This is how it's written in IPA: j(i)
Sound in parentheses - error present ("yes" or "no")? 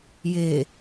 yes